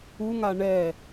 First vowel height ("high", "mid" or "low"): high